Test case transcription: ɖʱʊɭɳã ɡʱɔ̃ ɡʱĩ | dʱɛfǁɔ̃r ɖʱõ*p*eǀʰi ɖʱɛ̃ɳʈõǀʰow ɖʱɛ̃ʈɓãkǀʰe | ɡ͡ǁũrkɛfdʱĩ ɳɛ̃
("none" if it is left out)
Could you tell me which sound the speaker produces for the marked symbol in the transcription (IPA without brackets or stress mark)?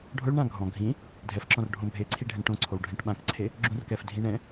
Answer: bʱ